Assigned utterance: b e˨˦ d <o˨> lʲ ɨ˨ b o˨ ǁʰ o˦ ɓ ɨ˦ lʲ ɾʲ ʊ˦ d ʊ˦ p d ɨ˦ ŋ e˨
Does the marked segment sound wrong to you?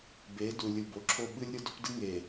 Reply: yes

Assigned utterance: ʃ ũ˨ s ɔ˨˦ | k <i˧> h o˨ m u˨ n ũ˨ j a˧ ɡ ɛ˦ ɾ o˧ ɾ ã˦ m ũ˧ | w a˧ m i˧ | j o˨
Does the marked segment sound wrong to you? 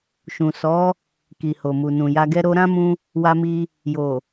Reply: yes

